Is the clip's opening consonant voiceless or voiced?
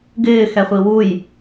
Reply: voiced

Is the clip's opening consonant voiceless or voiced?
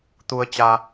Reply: voiceless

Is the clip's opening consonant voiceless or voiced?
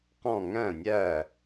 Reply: voiceless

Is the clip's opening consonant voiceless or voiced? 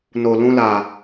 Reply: voiced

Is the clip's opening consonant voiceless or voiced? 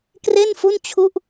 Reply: voiceless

